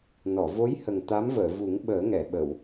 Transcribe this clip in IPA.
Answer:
n ɔ˨˩˨ v o˧˥ j h ə˨˩ ŋ t̪ a˧˥ m v əː˨˩˨ v u˨˩˦ ŋ ɓ əː˨˩˦ ŋ ɛ˨˩˨ ɓ ə˨˩˨ w

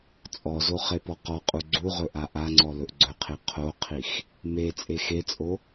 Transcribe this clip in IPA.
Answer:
t͡sʼ ɔ z o χ e p ɔ q ɔ qʼ u ɡ͡ǀ u ʁ ɵ ʔ a ʔ a ŋ͡ǀ ɔ l ɵ ʔ ɡ͡ǀ ɵ qʰ e qʰ o qʰ i x | m e t͡sʼ e x e t͡sʼ o

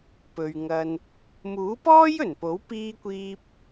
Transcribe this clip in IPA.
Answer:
p ɵ˨ ɥ ŋ ɐ˧ n | m uː˨˥ p ɔː˥ j ɵ˨˩ n p o˨˥ w p iː˥ kʷ iː˥ p̚

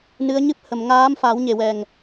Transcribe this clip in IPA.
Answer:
n ɨ˧˥ ə̯ ɲ ɨ˦˥ p̚ h ə˨˩˨ m ŋ aː˧˥ m f a˨˩˦ w ɲ e˨˩ w ɛ˨˩ ŋ

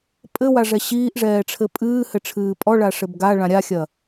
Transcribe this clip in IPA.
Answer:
pʼ ɘ w a ʐ ɛ ɕ iː ʔ ʐ ɛː ʈ͡ʂʰ ɘ pʼ ɨː h ɘ ʈ͡ʂʰ ɨː pʼ ɔ ɭ a ʂ ɘ b ɡ a ɭ ã ɾʲ a xʲ ɐ

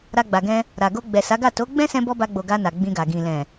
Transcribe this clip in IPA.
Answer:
ɾ a˧ ɡ͡b a˨ ɡ ɛ̃˧ | ɾ a˨ ɡ o˧ ɡ͡b ɛ˨ s a˨˦ ɡ a˦˨ t o˨˦ ɡ͡b ɛ̃˦ s ɛ̃˧ b ɔ˦ b a˧ ɡ͡b o˨ ɡ a˧ n a˨ ɡ͡b ĩ˧ ɡ a˨ ɡ ĩ˨ l ɛ̃˨

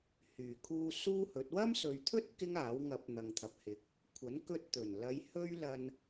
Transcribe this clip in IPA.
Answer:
h yː˨˩ kʰ uː˧ s uː˥ h ɵ˨˥ t̚ w ɐ˥ m s ɵ˨ ɥ t̪ʰ ɵ˥ t̚ k ɪ˥ ŋ aː˨˥ w ŋ ɐ˨˥ p̚ n̪ ɐ˨ ŋ t̪ʰ ɐ˨ p̚ h ɪ˨˥ k̚ | kʷʰ ɐ˨˥ n k ɵ˧ t̚ t̪ ɵ˨˩ n l ɐ˨˧ j h ɵ˥ ɥ l ɐ˧ n

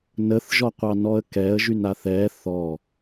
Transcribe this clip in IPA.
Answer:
n ə θ ʒ ɔ qʷ ɑ n ɔ ə̯ k ɛ ə̯ ʒ y n a θ ɛ θ ɔ

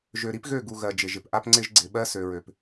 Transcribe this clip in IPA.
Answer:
ʒ ø˨ ɾ i˦ p ɣ ø˦˨ ɡ u˨ ɣ ɜ˨ d͡ʒ ɪ˨ ʒ ɪ˨ p ʔ a˦ p ŋ͡ǀ ɪ˦ ʒ ɡ͡ǀ ɪ˨ ɓ ɜ˦ s ø˨ ɹ ø˨ p

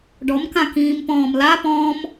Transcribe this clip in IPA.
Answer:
ɖ ɔ m k ã k ĩː m p ɔ̃ː m l a p ɔ̃ː m

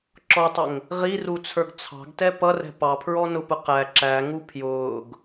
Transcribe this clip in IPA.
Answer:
ǁ ɔ tˤ ə ŋ | ʁ i r u t͡sʰ ə˞ ɡ t͡sʰ ɑ̤ ɡ t ɛ p ʌ r ɛ̤ p ɑ pʰ ɹ ɔ n ʊ p ʊ q æ ǁ æ ŋ u pʰ j ʊː ɡ

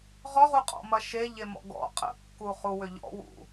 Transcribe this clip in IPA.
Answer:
ʁ ɔ ʁ u qʼ ɔ̰ m ɐ ʃ e ʎ e m ɔ̰ ɡ ɔ̰ qʼ ə̰ kː u χ u w ʏ ʎ ɔ̰ w ṵ

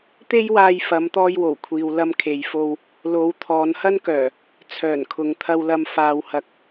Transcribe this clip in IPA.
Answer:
t̪ e˥ j w aː˧ j f ɐ˨˧ m t̪ ɔː˧ j w o˨˩ w kʷʰ iː˨ w l ɐ˧ m kʰ e˨ j f o˧ w | l o˨˧ w t̪ʰ ɔː˨˧ n h ɐ˥ n k œː˨˩ | t͡sʰ œː˨˩ n kʰ ʊ˨˧ ŋ t̪ʰ ɐ˧ w l ɐ˧ m f aː˨ w h ɐ˨ k̚

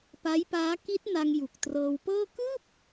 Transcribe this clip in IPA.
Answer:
p a˦˥ j p aː˦˥ k i˦˥ t̚ n a˧ ŋ j u˨˩ k̚ t r ɤː˧ w p ɤː˥˩ k ɯː˥˩ p̚

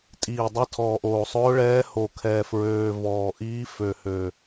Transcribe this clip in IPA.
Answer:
tʼ iː˨˩ dˤ ə˧˥ tʰ ɔː˨˩ ʔ oː˨˩ sˤ ʊː˧˥ ɭ ɛː˧˥ h o˨˩ kʰ ɛː˨˩ f ɹ øː˨˩ v ɔː˨˩ ʔ iː˧˥ f ø˨˩ h ø˨˩

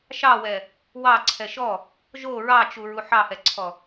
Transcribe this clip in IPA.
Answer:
ʃ ɑ w ɛ | w ɑ ǀʰ ɛ ʃ ɔ | ʒ o ɹ ɑ t͡ʃ u ɹ u ħ ɑ h ɛ ǀʰ ɔ

